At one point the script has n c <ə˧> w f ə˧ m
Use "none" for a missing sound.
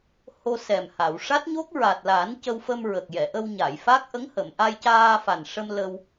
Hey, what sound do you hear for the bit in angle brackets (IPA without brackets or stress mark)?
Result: ə˧